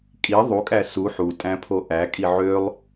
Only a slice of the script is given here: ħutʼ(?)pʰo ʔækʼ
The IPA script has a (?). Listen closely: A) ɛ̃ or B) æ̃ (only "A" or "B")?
B